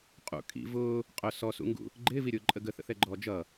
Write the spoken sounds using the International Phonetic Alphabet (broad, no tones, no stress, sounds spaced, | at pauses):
qʼ ṵ kʼ ḭ v ʊː | qʼ ʊ s ɔ s ṵ ŋ ɡ ṵ | ɡ͡ǃ ɪː v i ɾʲ ʊː ǃʼ ə ɡ ə θ ə̰ θ ɛ ɡ͡ǃ ɔː d͡ʒ ʌ